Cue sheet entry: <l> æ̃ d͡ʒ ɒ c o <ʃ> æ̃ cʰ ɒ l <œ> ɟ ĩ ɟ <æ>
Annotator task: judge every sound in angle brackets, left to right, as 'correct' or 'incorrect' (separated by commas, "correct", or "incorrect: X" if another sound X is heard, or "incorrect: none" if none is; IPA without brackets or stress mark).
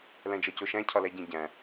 correct, correct, incorrect: æ, incorrect: æ̃